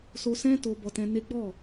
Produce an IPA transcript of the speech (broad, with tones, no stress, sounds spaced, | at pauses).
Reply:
s o˧ s ɛ̃˦ t o˧ b ɔ˧ t ɛ̃˧ n e˦ ɡ͡b ɔ˦˨